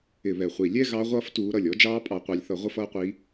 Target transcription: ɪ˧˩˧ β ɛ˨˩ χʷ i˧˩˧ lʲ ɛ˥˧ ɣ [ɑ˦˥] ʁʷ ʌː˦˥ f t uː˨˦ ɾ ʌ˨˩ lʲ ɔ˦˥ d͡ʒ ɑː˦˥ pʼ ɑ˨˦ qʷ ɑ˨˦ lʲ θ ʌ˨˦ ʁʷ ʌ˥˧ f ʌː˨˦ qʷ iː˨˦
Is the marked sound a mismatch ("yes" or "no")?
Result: no